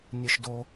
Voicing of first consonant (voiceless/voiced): voiced